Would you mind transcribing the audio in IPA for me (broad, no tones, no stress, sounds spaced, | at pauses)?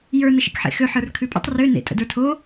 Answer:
j ə˞ n ə ʃ ḛ k ħ ḛ x ø ħ ə˞ r kʰ ʉ pʼ ə̰ tˤ r ø n ḛ tʼ ə̰ d ə˞ tʰ o